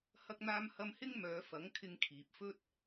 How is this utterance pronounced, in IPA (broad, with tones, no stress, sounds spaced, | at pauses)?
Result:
h ɐ˧ k̚ n̪ aː˧ m h ɐ˧ m h ɪ˥ ŋ m œː˨˧ f ɐ˨˥ ŋ kʰ ɪ˧ ŋ kʰ iː˨ p̚ f ɵ˥ t̚